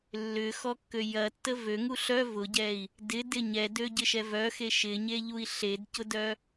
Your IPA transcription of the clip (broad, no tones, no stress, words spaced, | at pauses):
lːʏxɔkːø jɐtːə vøŋu ɬœ vʊɟɛi̯ | dɪdɪ ɲɛdøɟɪʃɛ vœxe ʃɪɲeʎui̯ ɬedcʊdœ